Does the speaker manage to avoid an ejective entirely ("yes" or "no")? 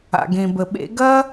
yes